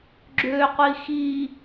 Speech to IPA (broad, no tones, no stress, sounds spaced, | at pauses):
ɡ͡ǁ ø qʷ i x i